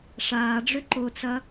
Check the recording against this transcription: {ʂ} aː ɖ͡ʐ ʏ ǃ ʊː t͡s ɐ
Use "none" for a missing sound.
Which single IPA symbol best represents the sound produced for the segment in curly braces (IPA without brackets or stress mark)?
ʂ